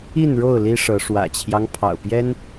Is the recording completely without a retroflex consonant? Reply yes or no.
no